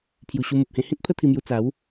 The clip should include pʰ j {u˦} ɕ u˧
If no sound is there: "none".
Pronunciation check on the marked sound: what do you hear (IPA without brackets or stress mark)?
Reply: u˨˩